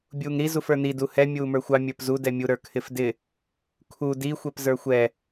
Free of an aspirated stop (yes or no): no